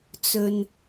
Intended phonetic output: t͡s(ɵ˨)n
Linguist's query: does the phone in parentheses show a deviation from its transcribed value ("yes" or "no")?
no